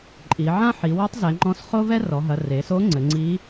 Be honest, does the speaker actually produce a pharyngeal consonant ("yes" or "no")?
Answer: yes